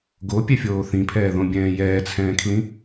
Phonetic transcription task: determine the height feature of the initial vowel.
mid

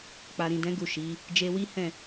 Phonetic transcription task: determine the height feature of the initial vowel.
low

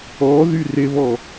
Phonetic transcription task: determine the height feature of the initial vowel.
mid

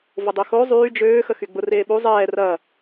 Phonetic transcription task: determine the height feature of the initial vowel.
high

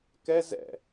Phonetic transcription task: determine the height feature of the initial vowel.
mid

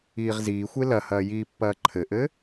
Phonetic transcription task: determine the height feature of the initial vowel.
high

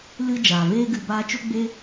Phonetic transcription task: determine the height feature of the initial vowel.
high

